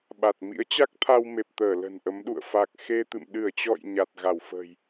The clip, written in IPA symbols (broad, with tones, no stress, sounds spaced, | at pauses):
ɓ a˨˩ t̚ m ḭ˧˥ ə̯ t͡ɕ a˦˥ k̚ t̪ʰ a˧ w m e˨˩ p̚ t̪ əː˧˩ l ə̤˨˩ n ʔ ə˨˦ m ɗ ṵ˧˨ ə̯ f a˨˩ k̚ x e˧ t̪ ɨ̰˧˨ m ɗ ɨ˧˩ ə̯ t͡ɕ ɔ̰˧˨ j ɲ a˨˩ t̚ ɣ a˧˩ w f ə̤ː˨˩ j